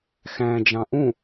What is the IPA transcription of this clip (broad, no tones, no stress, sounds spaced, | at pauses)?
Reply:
x æ̃ d͡ʒ ɑ̃ ʔ ũ